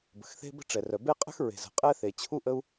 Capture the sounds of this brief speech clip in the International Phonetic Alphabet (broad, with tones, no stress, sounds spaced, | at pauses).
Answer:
b ə̤˩ x θ e̤˥ b ə̤˥ ʈ͡ʂ ɛ˩ r œ˩ b e˥ qʼ ə̤˥ x ɹ e̤˩ z ə̤˩ qʼ ɛ˥ θ e˩ t͡ɕʰ u˥ ʔ ə˥ u̯